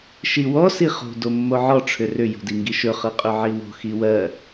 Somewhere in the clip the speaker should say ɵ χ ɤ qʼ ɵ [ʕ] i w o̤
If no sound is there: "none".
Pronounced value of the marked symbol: ʕ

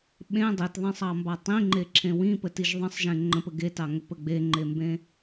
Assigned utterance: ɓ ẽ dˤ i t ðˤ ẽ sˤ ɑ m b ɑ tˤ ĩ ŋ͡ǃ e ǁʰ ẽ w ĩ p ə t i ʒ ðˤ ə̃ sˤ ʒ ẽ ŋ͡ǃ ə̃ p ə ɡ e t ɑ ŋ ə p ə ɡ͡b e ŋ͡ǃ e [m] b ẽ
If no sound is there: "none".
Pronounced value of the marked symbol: m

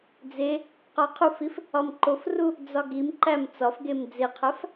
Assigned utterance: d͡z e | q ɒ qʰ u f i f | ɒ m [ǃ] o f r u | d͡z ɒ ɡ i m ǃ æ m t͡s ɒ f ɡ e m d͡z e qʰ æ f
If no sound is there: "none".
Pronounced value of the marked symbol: ǃ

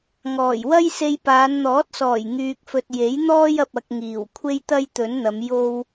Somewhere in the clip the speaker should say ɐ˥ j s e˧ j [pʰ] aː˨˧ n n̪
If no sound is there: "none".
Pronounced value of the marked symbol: p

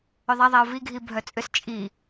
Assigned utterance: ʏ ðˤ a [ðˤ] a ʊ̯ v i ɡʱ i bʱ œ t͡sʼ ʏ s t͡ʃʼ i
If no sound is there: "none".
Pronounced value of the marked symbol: ðˤ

